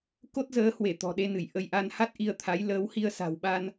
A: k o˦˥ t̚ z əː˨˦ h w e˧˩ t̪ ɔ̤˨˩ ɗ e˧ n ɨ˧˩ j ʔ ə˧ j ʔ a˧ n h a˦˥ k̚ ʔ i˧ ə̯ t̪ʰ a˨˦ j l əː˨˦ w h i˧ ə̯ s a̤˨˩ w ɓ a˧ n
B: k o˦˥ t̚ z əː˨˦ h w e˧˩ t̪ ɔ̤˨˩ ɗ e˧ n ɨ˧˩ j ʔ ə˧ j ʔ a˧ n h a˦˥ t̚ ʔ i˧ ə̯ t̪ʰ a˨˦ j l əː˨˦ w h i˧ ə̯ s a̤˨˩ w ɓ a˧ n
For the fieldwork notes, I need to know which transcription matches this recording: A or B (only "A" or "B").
B